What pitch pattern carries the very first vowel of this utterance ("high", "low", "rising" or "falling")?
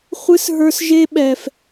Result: high